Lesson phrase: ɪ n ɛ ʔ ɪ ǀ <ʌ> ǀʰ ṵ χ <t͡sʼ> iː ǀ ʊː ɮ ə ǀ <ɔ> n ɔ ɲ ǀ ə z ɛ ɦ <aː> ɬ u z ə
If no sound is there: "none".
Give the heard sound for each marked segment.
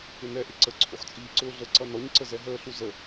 ə, t͡sʼ, ʌ, əː

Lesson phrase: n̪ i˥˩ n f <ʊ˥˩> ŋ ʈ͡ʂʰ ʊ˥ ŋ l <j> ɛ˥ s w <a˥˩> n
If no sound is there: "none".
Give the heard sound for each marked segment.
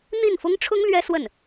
ʊ˥, ɥ, ə˥˩

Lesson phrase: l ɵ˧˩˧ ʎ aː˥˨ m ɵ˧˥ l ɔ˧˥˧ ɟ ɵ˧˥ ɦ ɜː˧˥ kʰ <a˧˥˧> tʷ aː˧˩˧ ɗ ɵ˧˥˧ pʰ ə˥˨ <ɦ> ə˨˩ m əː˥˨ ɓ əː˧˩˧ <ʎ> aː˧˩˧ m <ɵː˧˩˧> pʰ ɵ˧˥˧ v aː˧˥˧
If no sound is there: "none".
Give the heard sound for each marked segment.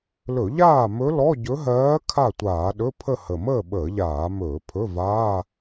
a˥˨, h, ʎ, ɵː˧˩˧

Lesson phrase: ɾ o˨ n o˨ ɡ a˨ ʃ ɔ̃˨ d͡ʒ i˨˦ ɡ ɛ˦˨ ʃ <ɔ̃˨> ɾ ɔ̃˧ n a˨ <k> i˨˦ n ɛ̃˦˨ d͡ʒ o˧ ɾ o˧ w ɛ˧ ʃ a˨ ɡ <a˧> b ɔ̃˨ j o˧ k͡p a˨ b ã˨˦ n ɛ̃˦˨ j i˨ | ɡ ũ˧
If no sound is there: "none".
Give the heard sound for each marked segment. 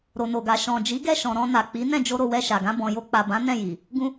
ɔ̃˨, k͡p, ã˧

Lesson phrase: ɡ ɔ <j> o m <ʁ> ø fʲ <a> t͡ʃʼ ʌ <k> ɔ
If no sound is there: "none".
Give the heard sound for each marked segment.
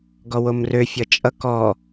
w, r, ʌ, k

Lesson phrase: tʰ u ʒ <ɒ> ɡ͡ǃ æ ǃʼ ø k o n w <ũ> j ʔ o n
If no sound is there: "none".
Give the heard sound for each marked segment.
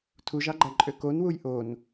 ɑ, u

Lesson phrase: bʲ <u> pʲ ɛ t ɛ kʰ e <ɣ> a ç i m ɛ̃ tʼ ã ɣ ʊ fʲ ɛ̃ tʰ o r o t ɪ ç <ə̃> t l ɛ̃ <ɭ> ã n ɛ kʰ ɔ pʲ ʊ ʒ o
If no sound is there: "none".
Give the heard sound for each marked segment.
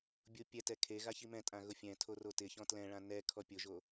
u, ɣ, ɔ̃, ɭ

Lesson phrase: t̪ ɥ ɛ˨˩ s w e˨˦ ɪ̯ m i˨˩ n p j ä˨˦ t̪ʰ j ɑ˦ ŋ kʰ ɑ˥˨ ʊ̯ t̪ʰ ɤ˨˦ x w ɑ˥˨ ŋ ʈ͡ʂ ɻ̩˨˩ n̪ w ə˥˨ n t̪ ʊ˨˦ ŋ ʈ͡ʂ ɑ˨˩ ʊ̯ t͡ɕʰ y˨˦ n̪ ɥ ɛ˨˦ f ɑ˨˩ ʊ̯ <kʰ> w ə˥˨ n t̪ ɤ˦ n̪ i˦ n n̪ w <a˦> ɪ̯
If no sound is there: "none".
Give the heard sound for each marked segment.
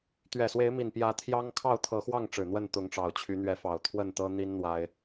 t̪ʰ, a˦

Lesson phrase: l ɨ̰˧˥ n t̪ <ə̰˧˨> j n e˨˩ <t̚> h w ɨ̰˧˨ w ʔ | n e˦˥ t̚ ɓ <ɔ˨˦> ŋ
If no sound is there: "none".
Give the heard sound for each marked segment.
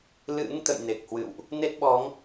ə̰˧˨, k̚, ɔ˨˦

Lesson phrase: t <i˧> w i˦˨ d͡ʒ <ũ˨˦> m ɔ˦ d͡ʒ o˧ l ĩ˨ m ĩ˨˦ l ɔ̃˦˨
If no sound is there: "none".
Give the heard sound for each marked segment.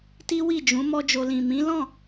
i˦, ũ˨˦

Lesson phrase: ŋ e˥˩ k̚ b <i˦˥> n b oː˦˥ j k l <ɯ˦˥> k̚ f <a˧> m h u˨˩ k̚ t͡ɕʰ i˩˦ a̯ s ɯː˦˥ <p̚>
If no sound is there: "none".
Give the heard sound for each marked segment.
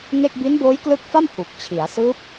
i˦˥, ɯ˦˥, a˥˩, p̚

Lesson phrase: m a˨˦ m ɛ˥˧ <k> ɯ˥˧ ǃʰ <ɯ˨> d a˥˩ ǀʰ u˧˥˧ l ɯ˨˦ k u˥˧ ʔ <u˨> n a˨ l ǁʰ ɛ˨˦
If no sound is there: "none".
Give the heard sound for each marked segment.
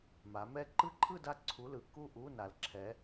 ǃ, ɯ˥˧, u˧˥˧

